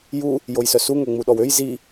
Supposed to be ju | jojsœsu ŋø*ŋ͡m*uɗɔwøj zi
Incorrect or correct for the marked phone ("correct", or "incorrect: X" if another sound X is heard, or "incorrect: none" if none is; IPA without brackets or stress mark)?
correct